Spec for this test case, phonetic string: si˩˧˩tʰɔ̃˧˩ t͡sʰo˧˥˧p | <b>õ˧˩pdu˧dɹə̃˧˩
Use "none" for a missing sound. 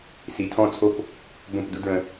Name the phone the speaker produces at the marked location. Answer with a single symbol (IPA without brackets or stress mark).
b